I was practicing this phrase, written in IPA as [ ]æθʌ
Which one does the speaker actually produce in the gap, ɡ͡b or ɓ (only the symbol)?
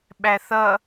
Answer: ɓ